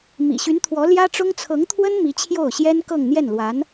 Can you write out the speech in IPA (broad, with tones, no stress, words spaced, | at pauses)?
mḭ˨˩ɕy˧˥nt̪ʰwɔ˧˥ ljä˥ʈ͡ʂʊ˥ŋ t͡sʰɤ˧˥ŋt̪ʰwə˥n mi˧˥t͡ɕʰjo˥˩ʊ̯ɕjɛ˥n kɤ˥˧ŋn̪jɛ˥˩nlwa˧˥n